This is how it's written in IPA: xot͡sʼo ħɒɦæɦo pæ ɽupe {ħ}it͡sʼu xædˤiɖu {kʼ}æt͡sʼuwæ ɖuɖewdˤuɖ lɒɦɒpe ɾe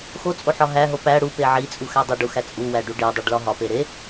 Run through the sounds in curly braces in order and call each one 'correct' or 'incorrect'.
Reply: incorrect, incorrect

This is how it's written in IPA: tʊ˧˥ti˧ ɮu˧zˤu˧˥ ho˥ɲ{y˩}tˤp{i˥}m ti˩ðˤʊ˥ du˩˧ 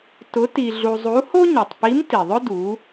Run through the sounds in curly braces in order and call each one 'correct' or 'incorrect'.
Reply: incorrect, incorrect

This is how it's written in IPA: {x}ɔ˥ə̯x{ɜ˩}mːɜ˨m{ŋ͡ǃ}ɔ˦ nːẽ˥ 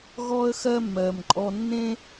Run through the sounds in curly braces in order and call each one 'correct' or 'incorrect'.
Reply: incorrect, incorrect, incorrect

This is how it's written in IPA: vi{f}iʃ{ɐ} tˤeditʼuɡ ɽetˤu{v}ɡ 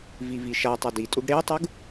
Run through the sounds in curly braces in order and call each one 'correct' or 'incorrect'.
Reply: incorrect, incorrect, incorrect

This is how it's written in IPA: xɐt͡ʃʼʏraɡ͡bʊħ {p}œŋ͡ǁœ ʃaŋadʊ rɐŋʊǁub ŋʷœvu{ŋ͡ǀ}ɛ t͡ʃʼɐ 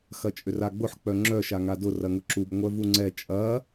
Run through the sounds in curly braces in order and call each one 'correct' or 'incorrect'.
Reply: incorrect, correct

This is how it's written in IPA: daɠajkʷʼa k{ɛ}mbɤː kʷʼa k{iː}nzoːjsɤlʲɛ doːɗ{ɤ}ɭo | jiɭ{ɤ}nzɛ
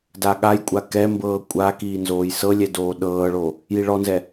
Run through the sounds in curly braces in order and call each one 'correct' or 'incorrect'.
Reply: correct, correct, incorrect, incorrect

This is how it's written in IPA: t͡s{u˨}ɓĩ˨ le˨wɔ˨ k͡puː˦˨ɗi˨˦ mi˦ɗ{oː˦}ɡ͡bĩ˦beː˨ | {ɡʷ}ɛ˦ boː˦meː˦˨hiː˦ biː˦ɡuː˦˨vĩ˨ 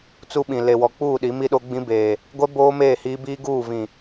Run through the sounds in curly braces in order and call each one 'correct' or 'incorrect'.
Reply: incorrect, incorrect, correct

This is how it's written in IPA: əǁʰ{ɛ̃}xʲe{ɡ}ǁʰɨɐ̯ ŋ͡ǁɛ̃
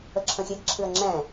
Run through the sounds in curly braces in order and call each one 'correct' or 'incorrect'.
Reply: incorrect, correct

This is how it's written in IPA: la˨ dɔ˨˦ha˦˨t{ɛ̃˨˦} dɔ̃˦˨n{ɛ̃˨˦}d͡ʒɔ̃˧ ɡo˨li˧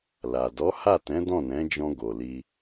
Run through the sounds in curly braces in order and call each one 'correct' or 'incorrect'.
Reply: correct, correct

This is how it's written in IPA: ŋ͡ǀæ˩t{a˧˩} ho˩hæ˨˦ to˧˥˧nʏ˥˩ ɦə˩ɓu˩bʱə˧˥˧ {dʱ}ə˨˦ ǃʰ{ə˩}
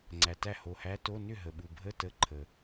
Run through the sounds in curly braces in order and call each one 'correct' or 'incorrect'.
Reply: incorrect, incorrect, correct

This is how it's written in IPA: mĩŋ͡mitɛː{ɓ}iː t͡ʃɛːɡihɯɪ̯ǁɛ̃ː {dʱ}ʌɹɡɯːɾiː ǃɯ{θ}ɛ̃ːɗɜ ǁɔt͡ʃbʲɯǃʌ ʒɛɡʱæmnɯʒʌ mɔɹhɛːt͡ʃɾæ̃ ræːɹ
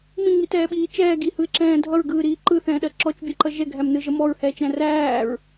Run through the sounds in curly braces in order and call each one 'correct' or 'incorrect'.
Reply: correct, correct, correct

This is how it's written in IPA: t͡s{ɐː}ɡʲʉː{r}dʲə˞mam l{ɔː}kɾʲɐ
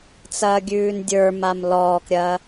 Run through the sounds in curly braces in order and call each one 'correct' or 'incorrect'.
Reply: correct, incorrect, correct

